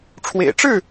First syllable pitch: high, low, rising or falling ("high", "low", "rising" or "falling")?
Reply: low